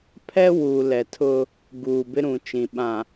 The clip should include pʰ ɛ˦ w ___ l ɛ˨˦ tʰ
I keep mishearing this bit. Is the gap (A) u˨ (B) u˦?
A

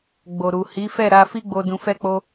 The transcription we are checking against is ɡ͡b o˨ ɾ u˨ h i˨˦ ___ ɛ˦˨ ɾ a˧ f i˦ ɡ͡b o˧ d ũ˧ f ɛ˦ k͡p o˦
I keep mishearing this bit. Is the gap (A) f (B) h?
A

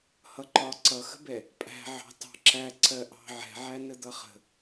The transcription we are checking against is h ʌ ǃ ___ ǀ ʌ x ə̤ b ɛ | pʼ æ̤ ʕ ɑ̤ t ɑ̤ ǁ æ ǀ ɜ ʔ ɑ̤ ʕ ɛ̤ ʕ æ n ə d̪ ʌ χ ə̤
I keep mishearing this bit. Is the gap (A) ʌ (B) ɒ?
B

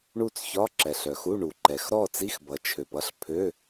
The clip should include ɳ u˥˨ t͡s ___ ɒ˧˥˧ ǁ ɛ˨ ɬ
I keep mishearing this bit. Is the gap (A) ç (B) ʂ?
A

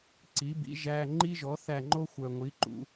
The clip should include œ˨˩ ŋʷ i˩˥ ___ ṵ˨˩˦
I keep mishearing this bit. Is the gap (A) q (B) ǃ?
B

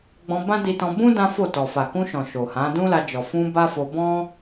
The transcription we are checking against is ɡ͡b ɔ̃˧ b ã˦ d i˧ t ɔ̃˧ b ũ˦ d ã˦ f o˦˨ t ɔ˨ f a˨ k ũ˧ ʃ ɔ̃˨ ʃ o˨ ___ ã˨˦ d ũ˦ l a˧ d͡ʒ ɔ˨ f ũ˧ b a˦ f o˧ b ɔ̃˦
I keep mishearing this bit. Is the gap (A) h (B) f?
A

